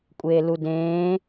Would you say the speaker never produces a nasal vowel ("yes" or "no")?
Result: no